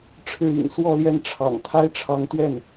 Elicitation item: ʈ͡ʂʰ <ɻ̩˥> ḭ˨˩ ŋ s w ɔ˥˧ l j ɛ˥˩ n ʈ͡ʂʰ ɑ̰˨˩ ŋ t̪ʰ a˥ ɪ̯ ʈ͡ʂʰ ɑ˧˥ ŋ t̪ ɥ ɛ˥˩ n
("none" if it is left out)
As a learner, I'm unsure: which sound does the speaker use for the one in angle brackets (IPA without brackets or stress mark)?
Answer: ɻ̩˥˩